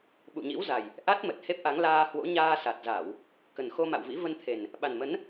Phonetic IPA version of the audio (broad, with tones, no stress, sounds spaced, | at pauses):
ɓ ṵ˧˨ ɲ ḭ˧˥ w z a˨˩ j | ʔ a˦˥ t̚ m ə˨˩ t̚ h e˦˥ p̚ ʔ a˨˦ ŋ l aː˧ h w o̰˧˥ ɲ aː˧ s a˨˩ t̚ z a˧˩˨ w | k ə˨˩ n x o˧ m a̰˧˨ w v ḭ˧˥ v ə˧ n t̪ʰ e˨˩ n | ɓ a˨˩ n m ə˨˦ n